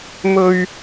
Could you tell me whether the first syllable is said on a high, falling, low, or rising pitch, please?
high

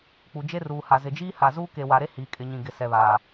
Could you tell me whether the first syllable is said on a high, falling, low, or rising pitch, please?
low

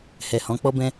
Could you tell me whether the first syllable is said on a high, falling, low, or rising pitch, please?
low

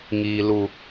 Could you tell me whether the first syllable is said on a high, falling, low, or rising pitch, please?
low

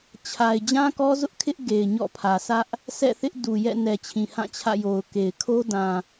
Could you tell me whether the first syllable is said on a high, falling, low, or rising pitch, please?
low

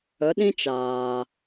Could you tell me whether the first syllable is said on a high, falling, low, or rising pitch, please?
rising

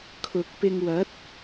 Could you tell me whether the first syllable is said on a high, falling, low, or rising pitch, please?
low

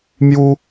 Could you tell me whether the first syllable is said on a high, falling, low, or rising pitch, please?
high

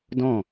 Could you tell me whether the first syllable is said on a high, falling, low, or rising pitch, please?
falling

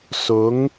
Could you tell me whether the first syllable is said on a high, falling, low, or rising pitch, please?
rising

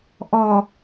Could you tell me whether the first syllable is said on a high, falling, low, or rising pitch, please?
low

